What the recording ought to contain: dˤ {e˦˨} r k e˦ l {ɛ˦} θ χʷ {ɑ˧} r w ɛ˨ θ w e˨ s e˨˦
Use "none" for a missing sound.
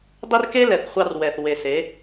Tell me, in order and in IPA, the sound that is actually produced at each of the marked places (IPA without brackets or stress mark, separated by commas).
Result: e˦, ɛ˨, ɑ˧